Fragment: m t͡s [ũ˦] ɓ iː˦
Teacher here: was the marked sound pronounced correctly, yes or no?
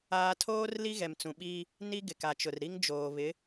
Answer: no